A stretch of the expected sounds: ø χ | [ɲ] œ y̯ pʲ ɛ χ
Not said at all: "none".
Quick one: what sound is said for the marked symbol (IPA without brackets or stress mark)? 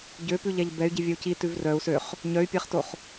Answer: ɲ